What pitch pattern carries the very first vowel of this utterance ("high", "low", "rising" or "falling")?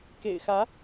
low